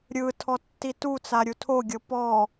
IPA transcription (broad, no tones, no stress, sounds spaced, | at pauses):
ɾʲ ɯ tʰ ɔ tː i t u t͡s a ɾʲ u tʰ o ɡʲ ɤ p ɔ